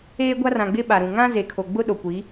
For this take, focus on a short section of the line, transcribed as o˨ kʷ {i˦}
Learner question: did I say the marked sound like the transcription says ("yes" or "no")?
no